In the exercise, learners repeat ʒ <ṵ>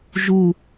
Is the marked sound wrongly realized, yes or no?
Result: yes